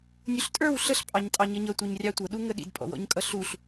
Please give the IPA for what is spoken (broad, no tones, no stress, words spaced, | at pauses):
nʲuɬtʼə˞w ɬəɬ pʼɑɲtʼɑɲʌɲʌ tʷʌɲrʲɑtʷʌ ɗuŋəɗḭd pʼɔ̰wɔ̰ɲkʼʌɬuɬ